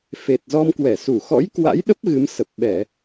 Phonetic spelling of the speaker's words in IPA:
fe˨˩t̚zɔ˧mkwɛ˧˩ su˧˩ xɔ̰˧˥jkwa̰˧˥jɗə˦˥p̚ ɣɨ˨˦msə˨˩p̚ ɓɛ˧˩˨

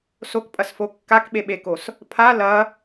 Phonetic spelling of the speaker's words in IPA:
sokpʼɐsfo kːakɓeɓekos | pʰa lɐ

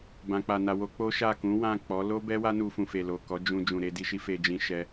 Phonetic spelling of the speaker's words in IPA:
bã˨k͡pa˨na˨ wo˧ k͡po˦ʃa˦˨ kũ˨˦wã˦˨k͡pɔ˨˦ lo˦bɛ˦ wa˦nu˧fũ˨ fe˨lo˨ kɔ˨˦d͡ʒũ˧ d͡ʒũ˨ɾe˨˦di˧ʃi˦ fe˧d͡ʒĩ˧ ʃɛ˧

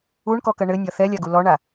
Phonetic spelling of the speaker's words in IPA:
uɳkɔkɐ ɳɘnʲɒ θɛlʲaɡu lɔɳa

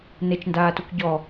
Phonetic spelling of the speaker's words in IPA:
net͡ʃndaːtuk ɟɔ

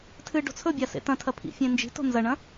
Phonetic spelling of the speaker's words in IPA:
tʰɨɖo̤ t͡sʰɵbʲa sḛtɐ̃tʰɐ pʰḭfʲẽ nd͡ʒi̤to̤ nzɐɳɐ̃

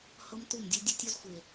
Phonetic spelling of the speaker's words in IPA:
hɤ˦mtu˦˨mdʲu˦ dʲo˦tʲo˦zxʷe˨

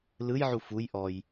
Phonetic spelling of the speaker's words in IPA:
lɯjʕu fuj ʔɔj

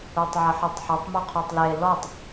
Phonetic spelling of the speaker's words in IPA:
utˤʕɪħetˤħʊtˤ muqʰutˤle lɔtˤ

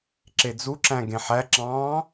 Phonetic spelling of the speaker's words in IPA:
ǁed͡zuǁæ̃ ɡẽħæǁɑ̃ː

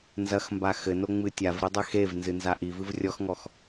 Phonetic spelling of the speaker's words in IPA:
nzɐxmba xɘnoŋ͡mɨ tʲavɾidˤɛ xevnzɨnza ʔivɨv rʲɔxŋɔx

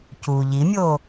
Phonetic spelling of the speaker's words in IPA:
cu ʎimʲo

